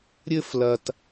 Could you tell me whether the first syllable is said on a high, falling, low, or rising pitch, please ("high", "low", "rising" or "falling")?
high